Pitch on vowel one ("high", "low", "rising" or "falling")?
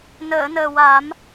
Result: low